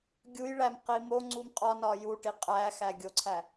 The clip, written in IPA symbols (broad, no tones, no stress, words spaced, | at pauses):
ɡʲujɭæm qimoŋ͡ǀum qʼɒnɒ juʈi qʼæ xæɡʲoǀʰæ